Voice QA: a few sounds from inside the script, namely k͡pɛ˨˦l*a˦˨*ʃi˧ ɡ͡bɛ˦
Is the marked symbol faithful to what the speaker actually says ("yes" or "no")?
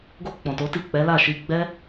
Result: yes